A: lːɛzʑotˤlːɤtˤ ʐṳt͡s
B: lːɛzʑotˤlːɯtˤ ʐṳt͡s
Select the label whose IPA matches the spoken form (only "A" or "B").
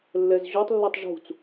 B